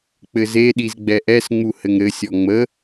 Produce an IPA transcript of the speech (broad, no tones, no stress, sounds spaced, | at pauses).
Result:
k͡p ɘ z e ɗ i z ɡ͡b ɛ ʔ ɛ s ŋ͡m u h ɘ ŋ ɾ ɘ sʲ ɔ ŋ͡m ə